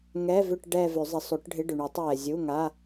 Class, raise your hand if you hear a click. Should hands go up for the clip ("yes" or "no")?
no